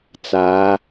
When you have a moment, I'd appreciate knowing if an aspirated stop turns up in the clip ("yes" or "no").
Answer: no